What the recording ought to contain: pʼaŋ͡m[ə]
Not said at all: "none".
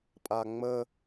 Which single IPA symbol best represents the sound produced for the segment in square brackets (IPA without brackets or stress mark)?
ə